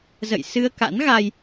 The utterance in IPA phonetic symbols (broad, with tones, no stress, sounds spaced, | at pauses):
z ə̰˧˨ j s ɨ˧ ə̯ k a̰˧˥ n ɣ a˧ j